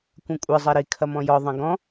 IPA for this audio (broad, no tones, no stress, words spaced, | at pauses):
kʷɐ̃kʷʼɨ zˤɛɾi kʰɐmɔ̃jɔ ðˤɐ̃ɡɔ̃